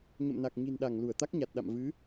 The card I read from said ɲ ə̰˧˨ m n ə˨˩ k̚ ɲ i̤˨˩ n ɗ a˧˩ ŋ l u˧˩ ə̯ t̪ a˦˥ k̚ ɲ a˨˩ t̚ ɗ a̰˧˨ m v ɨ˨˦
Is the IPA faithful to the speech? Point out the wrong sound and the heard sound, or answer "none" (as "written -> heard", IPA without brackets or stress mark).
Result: ə˨˩ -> a˨˩